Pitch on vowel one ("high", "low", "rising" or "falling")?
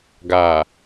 low